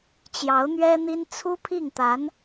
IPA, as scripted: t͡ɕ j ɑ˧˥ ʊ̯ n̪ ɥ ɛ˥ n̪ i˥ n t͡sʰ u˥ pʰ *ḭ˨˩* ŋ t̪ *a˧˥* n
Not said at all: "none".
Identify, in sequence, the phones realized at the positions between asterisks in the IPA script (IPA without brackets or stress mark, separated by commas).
i˥˩, a˧˥